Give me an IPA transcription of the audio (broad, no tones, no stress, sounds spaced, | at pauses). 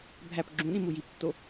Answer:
bʱ æ p ɡ͡ǁ ũ ɗ ĩ m u j i p tː o